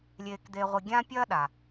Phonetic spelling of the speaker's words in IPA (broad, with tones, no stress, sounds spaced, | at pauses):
lʲ eː˧ k d̪ e˧ ʁʷ i˧ ɡʲ ã˥ pʲ ɐː˥ ɗ a˩